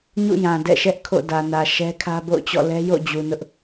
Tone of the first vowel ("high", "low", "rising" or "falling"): falling